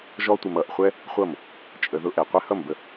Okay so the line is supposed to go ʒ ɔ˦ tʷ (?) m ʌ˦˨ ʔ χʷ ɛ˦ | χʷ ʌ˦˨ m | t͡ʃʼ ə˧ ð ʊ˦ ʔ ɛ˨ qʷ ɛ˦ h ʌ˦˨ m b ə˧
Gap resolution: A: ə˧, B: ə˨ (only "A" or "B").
A